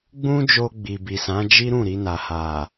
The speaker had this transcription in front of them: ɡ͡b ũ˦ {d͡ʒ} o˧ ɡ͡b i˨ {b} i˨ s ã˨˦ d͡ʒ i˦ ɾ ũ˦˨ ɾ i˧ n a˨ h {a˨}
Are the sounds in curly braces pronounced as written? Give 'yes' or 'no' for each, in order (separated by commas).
yes, yes, yes